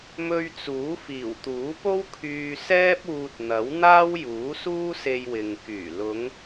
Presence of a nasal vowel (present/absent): absent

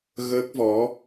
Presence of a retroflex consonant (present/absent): absent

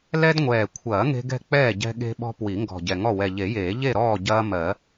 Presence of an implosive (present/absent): present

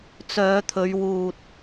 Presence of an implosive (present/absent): absent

